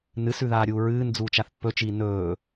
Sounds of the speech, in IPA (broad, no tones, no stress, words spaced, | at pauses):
nɨsʉðaːɾʲuː ɹɨːnd͡zuː t͡ʃaθpːɵt͡ʃiː nɵː